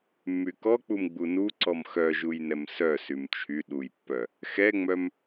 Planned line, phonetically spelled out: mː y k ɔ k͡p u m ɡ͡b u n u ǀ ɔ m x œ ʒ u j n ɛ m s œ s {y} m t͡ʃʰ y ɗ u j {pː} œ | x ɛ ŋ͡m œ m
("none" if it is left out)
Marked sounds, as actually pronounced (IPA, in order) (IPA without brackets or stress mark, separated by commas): y, pː